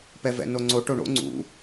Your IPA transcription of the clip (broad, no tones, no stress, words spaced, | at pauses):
pɛvɛ̰noŋ͡ǀo ʈoɳo̰ ŋ͡ǀṵ